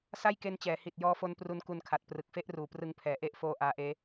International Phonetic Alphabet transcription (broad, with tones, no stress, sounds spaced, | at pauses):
s a˥˩ j k e˦˥ n t͡ɕ ɛː˩˦ h i˨˩ t̚ j ɔː˦˥ f o˦˥ n p r u˦˥ n k u˧ n kʰ a˨˩ t̚ p r ɯ˨˩ k̚ f e˥˩ ʔ r uː˨˩ p r ɯ˧ ŋ pʰ ɛː˩˦ ʔ e˦˥ ʔ f oː˧ ʔ aː˦˥ ʔ eː˦˥